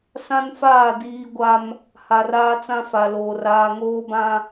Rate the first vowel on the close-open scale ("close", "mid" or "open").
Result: open